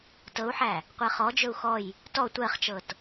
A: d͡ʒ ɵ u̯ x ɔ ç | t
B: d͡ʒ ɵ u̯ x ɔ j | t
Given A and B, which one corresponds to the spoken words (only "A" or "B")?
B